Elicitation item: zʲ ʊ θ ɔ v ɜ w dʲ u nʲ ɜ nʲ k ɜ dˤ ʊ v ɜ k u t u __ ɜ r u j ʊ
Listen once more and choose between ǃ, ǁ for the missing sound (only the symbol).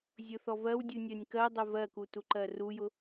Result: ǃ